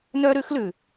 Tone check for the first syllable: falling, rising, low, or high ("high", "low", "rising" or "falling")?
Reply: high